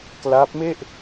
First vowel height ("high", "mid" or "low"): low